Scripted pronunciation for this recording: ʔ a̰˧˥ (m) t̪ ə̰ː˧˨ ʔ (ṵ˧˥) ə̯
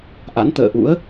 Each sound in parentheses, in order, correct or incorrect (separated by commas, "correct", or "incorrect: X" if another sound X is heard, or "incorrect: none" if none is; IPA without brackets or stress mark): incorrect: n, correct